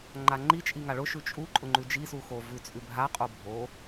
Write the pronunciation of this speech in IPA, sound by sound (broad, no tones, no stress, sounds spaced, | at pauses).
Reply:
ŋ͡ǃ a ŋ͡ǃ i t͡ʃʼ i ŋ a ɭ ʊ ʃ ʉ t͡ʃʼ u ǃʼ ʊ ŋ͡ǃ ʉ d͡ʒ i s u x o v ʉ t͡sʼ ʉ bʱ a qʼ o bʱ o